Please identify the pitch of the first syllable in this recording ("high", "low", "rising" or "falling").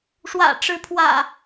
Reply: low